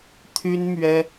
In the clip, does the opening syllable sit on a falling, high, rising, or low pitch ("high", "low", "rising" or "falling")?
high